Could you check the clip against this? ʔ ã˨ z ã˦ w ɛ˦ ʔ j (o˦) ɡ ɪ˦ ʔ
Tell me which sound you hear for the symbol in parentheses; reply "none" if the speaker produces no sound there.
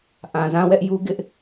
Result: u˦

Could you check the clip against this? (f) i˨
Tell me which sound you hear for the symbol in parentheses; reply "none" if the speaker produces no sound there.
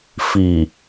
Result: f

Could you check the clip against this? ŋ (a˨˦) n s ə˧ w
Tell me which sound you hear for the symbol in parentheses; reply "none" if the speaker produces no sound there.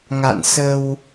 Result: a̰˧˨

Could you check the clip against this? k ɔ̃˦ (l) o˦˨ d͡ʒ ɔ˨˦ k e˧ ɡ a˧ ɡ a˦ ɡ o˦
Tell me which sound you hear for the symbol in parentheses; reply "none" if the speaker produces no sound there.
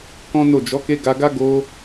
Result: n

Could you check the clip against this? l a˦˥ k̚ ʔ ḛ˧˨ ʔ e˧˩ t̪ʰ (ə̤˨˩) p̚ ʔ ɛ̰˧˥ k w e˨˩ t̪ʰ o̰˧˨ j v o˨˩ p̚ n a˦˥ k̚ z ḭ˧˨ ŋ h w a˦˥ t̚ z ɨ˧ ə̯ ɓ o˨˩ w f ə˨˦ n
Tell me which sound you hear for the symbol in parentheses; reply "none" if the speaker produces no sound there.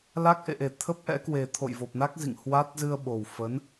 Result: ə˦˥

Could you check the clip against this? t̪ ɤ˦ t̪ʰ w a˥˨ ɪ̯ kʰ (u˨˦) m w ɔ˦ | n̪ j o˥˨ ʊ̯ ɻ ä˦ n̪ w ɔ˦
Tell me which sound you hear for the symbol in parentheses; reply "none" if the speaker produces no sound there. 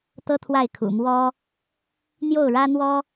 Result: ṵ˨˩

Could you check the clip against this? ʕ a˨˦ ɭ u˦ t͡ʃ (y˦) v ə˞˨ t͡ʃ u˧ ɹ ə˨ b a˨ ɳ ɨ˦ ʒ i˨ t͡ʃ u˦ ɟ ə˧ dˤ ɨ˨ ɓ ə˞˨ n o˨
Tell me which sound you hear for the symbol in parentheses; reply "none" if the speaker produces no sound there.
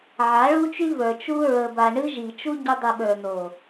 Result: y˦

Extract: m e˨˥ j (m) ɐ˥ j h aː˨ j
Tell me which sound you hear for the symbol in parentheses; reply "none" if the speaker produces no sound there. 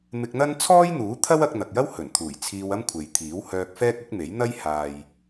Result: n̪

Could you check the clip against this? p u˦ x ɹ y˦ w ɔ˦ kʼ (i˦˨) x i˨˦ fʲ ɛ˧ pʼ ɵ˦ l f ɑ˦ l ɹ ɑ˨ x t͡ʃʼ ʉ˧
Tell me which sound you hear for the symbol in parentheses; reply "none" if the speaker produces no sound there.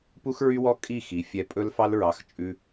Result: i˦˨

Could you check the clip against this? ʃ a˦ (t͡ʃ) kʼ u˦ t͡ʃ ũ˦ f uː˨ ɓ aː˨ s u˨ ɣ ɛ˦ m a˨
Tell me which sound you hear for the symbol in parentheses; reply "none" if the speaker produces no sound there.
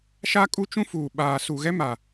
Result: none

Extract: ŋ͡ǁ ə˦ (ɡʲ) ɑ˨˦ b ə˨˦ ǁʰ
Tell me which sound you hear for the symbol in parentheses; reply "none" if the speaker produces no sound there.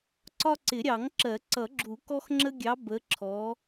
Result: ɡʲ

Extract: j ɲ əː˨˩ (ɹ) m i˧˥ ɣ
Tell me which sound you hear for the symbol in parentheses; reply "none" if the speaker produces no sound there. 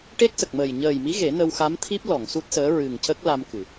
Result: j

